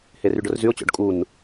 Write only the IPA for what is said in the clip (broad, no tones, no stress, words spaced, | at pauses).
heryɖʊrzyʊ̯ t͡ɕɔ̰ɖkʼun